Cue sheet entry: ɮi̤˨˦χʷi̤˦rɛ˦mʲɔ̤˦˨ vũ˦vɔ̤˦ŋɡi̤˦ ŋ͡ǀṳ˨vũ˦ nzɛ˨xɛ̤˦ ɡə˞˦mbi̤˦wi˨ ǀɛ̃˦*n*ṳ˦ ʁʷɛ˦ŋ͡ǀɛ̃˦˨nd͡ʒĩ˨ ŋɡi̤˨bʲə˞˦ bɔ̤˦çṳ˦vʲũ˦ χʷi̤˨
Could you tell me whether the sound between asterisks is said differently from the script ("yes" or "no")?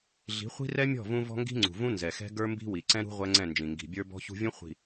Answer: yes